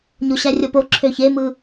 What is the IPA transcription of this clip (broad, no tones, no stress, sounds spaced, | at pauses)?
ɲ o ɕ æ rʲ o p o ǁʰ ø ç e m ɯ